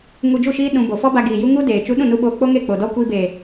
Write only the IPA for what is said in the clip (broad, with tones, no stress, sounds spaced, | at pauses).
ŋ u˧ d͡ʒ u˦˨ ʃ iː˦ ɗ ũ˧ b o˨ f ɔ˦ b a˧ ɡ iː˨ j u˧ ŋ u˦ d eː˨ t͡ʃ u˧ ɗ ũ˦˨ n u˧ ɓ oː˧ k͡p o˦ ŋ e˦˨ k͡p o˨ d ɔ˦ kʷ iː˧ b eː˨